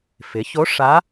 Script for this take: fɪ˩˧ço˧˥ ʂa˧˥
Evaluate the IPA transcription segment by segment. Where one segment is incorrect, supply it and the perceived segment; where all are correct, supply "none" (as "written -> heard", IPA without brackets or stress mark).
none